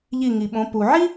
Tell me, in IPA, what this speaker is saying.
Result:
ʎi˧˩ŋi˩ɓõ˩˧ pu˩ʕi˥

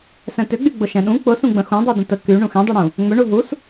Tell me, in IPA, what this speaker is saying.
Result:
sɛ̃tʏɡ͡by ɡ͡bʊʃɛ̃ɗũ k͡pʊsũɡ͡bə̃ xũdˤudə̃ tə ky ɳũxɛ̃dˤyɽũ | ŋ͡mʏ ɳuɦus

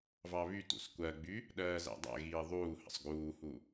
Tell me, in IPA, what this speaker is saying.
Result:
vɑβytṵs kʷɜɡ͡by | ɗɜːzæ̰dˤæ̰ɣiː ðˤuː hə̰sˤɡuːhu

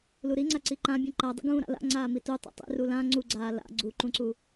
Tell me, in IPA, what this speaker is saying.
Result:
luɾiŋ͡ǀa ǀiǃãbʲũ ǃadˤḭ ɡũːɾa̰la̰ ŋ͡ǀaːmitu tˤḭtˤḭ rulã ŋ͡ǀuɡ͡ǀaː la̰ ɡ͡ǀuǃũǀu

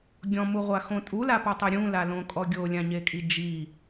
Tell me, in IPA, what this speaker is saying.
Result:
ɡʲɔ̃muʁʷaxõ tʼulapɔtˤɛ ɾʲũlalõkʼɔ ɡʲolʲãɲekʼi d͡ʒi

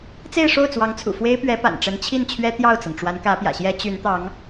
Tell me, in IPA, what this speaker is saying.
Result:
t͡se˥˧ɪ̯ʂo˥˩ʊ̯ t͡swɑ˧˥ŋt͡sʰṵ˨˩fwe˥ɪ̯pɥɛ˧˥ pa̰˨˩nʈ͡ʂə˧˥n t͡ɕʰi˥˩nt͡ɕʰɥɛ˥ t̪jɑ˥˩ʊ̯t͡sɤ˩ŋʈ͡ʂwa˧˥n kä˧˥pjä̰˨˩ɕjɛ˥ t͡ɕy˧˥nt̪ɑ˧˥ŋ

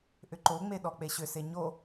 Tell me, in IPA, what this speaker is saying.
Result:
ʔʏǃoŋ͡me ɗɔk͡peɕʏse ɲo

